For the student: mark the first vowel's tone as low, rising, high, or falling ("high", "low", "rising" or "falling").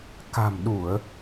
low